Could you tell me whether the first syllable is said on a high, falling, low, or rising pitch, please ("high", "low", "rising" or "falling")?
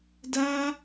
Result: high